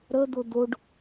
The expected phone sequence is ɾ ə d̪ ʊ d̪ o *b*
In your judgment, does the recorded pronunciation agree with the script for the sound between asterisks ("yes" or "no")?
no